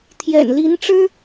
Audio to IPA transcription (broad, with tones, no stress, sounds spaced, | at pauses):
t̪ʰ j ɛ̰˨˩ n l i˧˥ n ʈ͡ʂ ɻ̩˥